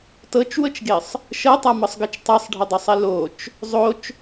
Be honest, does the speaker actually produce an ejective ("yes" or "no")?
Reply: no